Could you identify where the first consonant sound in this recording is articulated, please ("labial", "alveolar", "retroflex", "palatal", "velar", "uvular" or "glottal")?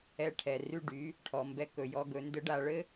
retroflex